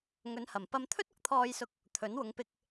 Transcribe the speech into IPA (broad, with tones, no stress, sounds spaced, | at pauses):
ŋ ɵ˨˧ n h ɐ˨˩ m p ɐ˧ m t̪ʰ ɵ˥ t̚ ʊ˧ k̚ t̪ʰ ɔː˧ j s ʊ˧ k̚ | t̪ʰ ɵ˨˥ n w ʊ˨˧ ŋ p ɪ˧ k̚